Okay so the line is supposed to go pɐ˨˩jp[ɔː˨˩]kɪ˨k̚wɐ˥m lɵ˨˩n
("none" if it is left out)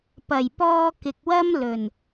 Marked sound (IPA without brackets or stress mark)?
ɔː˧